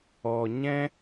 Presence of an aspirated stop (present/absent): absent